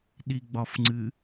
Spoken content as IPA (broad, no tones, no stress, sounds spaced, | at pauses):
ɗ i ɡ͡b ɒ f ŋ͡ǀ ɨ